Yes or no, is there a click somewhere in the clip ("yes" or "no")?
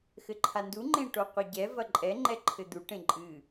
yes